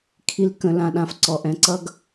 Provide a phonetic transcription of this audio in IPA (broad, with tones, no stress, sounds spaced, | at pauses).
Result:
kʰ i˨ l k ə̃˨ l ã˨ ɗ ã˨ f ǀ ɔ˨ ʔ ɛ̃˨ ǀ ʌ˦ ɡ